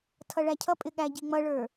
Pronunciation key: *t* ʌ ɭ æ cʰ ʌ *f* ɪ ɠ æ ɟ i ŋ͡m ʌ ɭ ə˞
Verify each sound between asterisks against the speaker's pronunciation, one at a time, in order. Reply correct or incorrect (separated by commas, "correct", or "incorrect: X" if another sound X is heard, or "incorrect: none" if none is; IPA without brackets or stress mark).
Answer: incorrect: tʰ, incorrect: pʼ